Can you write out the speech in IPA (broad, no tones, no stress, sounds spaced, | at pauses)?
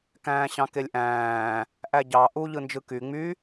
k æ̃ː ɕ ɑ̃ k e lʲ ʔ æ̃ː | ʔ æ ɟ ɑ ʔ u ʎ ɯ n d͡ʒ ɯ k y ŋ͡m y